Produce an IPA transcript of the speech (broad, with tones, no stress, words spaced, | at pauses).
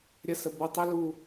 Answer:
ɾʲə˧sə˨bo˧ tˤə˦lu˧